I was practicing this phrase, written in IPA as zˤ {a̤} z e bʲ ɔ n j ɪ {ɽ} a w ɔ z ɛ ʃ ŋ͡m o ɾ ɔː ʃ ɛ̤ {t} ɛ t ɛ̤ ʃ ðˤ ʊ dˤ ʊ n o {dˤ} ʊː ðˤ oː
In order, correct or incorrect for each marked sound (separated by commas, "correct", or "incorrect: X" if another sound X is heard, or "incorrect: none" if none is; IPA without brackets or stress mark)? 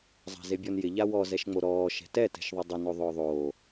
correct, incorrect: ʎ, correct, incorrect: ðˤ